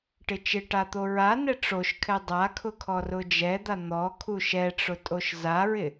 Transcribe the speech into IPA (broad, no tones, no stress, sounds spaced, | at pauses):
ʈ ɪ t͡ʃ ɪ ʈ a t̪ o ɹ a n ɛ ʈ͡ʂ o ʃ kʰ ɛ dˤ a kʰ ʊ kʰ ɔ r ʊ d͡ʒ ɛ d̪ a n̪ ɔ kʰ u ʃ ɛ ʈ͡ʂ ʊ tʼ o ʃ z a ɹ ɪ